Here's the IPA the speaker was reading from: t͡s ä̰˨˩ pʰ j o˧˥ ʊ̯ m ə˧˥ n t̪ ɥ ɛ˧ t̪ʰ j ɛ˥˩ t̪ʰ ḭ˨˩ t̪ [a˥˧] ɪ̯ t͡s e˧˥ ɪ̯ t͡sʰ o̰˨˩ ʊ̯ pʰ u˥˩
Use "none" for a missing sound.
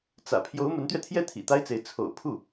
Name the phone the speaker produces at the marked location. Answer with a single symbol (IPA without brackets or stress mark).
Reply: a˥